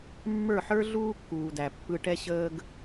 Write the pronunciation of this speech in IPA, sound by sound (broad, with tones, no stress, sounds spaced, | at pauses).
mː ə˞˦˨ ħ ə˞˦ ɮ uː˦ kː uː˨ d æ˨ pː ɯ˧ ʈ ɛ˦ ɕ əː˦ ɡ